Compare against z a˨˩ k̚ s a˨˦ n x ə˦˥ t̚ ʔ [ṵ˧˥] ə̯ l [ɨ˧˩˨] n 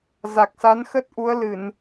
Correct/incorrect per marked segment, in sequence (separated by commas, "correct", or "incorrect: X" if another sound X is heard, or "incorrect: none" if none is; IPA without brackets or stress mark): incorrect: u˨˦, correct